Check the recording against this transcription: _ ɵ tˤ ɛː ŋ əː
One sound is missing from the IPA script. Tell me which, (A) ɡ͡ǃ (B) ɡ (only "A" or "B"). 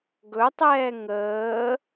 B